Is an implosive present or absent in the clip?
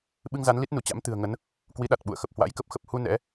present